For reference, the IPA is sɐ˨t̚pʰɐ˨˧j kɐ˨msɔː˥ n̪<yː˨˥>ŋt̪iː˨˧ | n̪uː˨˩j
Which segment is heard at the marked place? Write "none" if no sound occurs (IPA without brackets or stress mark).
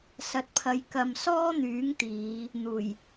yː˨˥